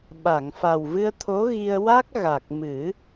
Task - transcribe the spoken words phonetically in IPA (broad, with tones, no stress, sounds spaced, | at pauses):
ɓ a˨˩˨ ŋ f a˨˩ w v ɨ˧ ə̯ t̪ʰ o˧˥ ɣ i˧ ə̯ w a˦˥ k̚ ɣ a˨˩ k̚ m ɨ˨˩˦